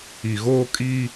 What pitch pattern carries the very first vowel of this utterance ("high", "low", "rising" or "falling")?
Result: low